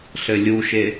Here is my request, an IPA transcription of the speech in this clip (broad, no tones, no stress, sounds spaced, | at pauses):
ɬ ɘ lʲ u ʃ e